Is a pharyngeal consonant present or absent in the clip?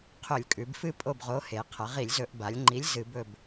absent